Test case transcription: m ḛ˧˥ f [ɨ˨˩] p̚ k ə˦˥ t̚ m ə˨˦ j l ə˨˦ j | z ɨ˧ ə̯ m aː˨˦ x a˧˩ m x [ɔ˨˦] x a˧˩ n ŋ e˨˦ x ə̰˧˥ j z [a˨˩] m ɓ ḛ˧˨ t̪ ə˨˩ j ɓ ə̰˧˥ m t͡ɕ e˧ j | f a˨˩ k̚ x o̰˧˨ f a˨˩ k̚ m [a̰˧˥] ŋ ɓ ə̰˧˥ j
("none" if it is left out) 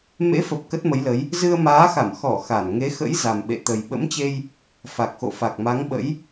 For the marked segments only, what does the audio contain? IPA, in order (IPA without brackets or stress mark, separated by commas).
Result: ə˨˩, ɔ˧˩, a˨˩, a˨˦